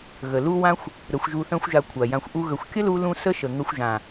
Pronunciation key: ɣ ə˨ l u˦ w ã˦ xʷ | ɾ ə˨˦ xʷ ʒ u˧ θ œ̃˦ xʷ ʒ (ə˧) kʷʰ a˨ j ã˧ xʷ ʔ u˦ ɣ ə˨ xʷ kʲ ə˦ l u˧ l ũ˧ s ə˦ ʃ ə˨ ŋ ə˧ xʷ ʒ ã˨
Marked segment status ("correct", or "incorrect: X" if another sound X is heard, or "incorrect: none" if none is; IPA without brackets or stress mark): incorrect: a˧